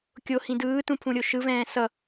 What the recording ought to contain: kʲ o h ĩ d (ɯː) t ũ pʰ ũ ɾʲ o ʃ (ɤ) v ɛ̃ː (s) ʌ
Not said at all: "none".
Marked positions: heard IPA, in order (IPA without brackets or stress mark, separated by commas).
ɯː, ɯ, s